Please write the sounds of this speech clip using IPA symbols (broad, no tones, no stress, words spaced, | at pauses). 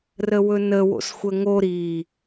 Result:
rəwɵnə wo̰sxʷəŋo ɾi